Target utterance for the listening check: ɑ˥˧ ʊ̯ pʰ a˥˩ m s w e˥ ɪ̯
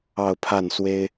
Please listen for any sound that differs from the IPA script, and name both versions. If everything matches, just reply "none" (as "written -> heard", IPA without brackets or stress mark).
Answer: m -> n